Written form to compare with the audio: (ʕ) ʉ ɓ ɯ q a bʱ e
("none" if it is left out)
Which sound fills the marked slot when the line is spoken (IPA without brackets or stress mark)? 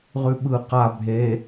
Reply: ʁ